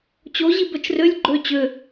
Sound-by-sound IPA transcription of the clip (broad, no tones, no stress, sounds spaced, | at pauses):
t͡ɕ o ʑ i b œ t͡ʃ r ø lʲ ɡ͡ǃ ø t͡ɕ ø